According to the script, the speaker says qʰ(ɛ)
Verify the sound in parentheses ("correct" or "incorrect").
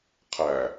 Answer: incorrect